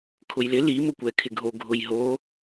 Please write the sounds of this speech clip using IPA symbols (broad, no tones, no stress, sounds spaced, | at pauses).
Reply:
kʰ ʊ j l ɪ l i m ʊ kʷ ɛ kʰ ɪ ɡʱ o ɡʱ ʊ j ɦ o